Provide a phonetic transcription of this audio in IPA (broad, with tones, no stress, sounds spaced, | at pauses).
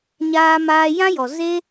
ɲ aː˦ m aː˦ j ã˦ j ɔ˨ z e˦